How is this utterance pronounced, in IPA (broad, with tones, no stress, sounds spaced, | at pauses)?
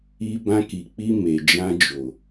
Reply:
i˧ b ã˧ k i˨ k͡p i˧ m e˨ d͡ʒ ã˧ d͡ʒ o˨